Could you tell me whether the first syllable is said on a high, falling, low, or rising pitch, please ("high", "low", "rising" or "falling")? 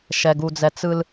low